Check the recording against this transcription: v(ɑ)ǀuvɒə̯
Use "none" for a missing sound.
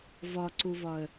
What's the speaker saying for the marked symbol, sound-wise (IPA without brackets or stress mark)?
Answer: ɒ